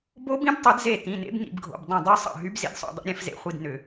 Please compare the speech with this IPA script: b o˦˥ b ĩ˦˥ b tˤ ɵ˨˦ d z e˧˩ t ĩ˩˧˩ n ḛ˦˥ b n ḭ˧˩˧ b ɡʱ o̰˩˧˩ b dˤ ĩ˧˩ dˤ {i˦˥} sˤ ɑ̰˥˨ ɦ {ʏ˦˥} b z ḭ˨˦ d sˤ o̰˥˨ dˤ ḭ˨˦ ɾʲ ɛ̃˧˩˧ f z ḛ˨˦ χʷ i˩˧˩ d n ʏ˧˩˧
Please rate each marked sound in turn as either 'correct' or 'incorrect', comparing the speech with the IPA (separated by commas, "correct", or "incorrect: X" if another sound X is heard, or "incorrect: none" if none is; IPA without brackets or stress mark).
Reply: incorrect: y˦˥, incorrect: y˦˥